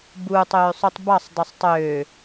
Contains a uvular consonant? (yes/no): no